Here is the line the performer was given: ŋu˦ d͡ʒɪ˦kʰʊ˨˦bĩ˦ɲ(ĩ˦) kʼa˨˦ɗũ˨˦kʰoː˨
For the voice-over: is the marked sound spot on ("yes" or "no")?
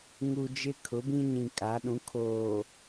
no